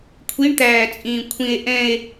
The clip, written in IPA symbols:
kʷʰ i ɳ t̪ æː t͡sʼ ĩː kʷʰ ĩ e̯ ʔ ɛ̃ e̯

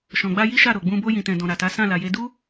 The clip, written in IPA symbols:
ʃ ɔ̃˨ ɡ͡b a˧ j i˦ ʃ a˦˨ ɾ o˨ ɡ͡b ũ˧ b o˧ j ĩ˨ t ɛ̃˨ d ɔ̃˨ ɾ a˨ t a˨˦ s ã˦˨ l a˨ j e˧ d u˦

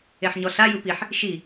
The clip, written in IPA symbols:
e ħ ɲ ɔ ɬ a j ɯ p i ħ | ʃ i

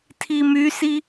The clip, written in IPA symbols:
tʰ i m y s i

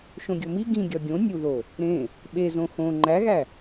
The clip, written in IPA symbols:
ʃ õ ɡʲ o m i ɡ ĩ ɡʲ ɒ ɡʲ õ nʲ u ð o | ɾ ẽ | ɓ e z õ x õ ŋ͡ǃ æ ɣ æ

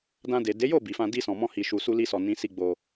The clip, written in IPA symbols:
d ã˧ d e˨ d e˨˦ j o˦˨ b i˨ f ã˧ d i˧ s ɔ̃˨ m ɔ̃˧ h i˨ ʃ u˨ s u˧ l i˧ s ɔ˨ n ĩ˨˦ s i˧ ɡ͡b o˧

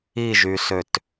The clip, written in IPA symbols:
i ʒ y s ø t

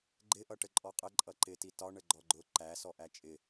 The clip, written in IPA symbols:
ɡ͡ǃ ɪ ʔ ʌ ʈ ə ǃʼ ɔ qʼ ə ǃʼ ʌ ǃ ɪ t i t ɒ ɳ ə ɡ͡ǃ ɔ ɡ͡ǃ ʊ ǃ æ s ɔ ʔ æ t͡ʃʼ ɪ

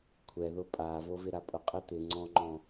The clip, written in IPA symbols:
kʷʰ ɛ ð ʊ pʼ a v o v ɪ ɾ a pʼ ʊ qʼ ɪ t̪ ɪ ŋ͡ǀ ɔ̃ ŋ͡ǃ ɔ̃

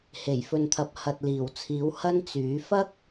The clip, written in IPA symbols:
h e˨˩ j f ɵ˨ n t̪ʰ ɐ˨ p̚ h ɐ˨ t̚ l iː˨˩ w t͡sʰ iː˨˥ w h ɐ˥ n t͡s yː˨˥ f ɐ˥ k̚

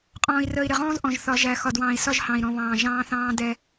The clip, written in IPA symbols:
qʼ ɔ̃ː˨ i̯ r əː˨ i̯ ɾ ɪ˨ ʁ ɔ̃ː˦ z ʔ ɔ̃˨ ʒ θ ɒ˨˦ ʒ æ˨ x ɒ˨ d w ɑ̃ː˨ i̯ s ɒ˦ ʒ h ɑ̃˨ i̯ ɾ ɔ̃˨ β ɑ̃ː˨ ʒ ɑ̃ː˦ θ ɑ̃ː˦ d ɛ˦

